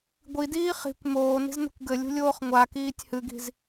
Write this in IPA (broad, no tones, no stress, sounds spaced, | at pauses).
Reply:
ɡʷ i d iː χ i̤ kʷ m oː n i̤ z n ṳ kʷ ɡ ɘ lʲ ṳ lʲ oː χ ŋʷ a k iː tʲ h ɨ ɡ i̤ z